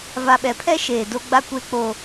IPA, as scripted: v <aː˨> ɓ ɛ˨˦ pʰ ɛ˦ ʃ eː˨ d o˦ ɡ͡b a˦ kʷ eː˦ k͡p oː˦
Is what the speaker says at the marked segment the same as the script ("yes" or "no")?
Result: no